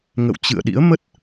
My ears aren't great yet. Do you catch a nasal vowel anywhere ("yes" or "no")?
no